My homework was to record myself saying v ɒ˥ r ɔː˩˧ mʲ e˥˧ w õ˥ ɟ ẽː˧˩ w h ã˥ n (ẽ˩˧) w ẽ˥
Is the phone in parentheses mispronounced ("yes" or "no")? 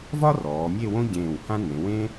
no